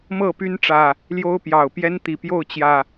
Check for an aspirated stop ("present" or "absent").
absent